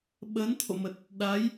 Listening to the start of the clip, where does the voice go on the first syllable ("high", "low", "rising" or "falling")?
rising